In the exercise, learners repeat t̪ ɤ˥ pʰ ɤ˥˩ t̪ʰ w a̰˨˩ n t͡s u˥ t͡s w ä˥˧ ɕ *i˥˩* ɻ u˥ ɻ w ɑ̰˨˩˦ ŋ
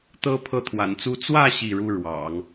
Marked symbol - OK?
yes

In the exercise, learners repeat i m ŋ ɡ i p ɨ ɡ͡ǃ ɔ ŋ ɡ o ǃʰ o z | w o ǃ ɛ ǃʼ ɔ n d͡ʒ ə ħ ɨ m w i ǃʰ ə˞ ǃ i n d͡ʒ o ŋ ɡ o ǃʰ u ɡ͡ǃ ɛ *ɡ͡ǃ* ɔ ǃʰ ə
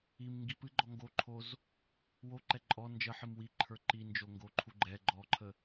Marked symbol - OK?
yes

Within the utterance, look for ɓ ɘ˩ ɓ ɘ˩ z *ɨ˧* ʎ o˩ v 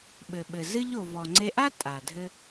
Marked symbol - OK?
yes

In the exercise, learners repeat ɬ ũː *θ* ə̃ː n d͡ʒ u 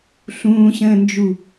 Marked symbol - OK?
no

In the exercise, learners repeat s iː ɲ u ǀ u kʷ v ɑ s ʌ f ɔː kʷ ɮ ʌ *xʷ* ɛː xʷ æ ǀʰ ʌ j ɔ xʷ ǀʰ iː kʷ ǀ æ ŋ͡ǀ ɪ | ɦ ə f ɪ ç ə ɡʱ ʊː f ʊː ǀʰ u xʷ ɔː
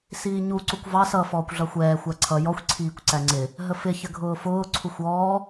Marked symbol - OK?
yes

